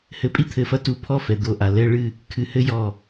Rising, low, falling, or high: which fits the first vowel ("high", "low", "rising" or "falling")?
rising